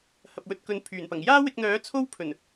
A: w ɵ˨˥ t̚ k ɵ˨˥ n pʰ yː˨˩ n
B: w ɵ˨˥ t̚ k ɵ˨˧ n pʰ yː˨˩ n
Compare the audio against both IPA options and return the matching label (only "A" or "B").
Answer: A